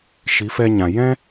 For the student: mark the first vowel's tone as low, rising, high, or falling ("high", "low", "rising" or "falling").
rising